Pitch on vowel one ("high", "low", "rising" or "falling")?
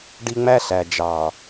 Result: high